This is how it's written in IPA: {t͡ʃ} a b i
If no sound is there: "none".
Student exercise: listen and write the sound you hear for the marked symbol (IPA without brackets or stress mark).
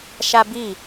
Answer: ʃ